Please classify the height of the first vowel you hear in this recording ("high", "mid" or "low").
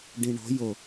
high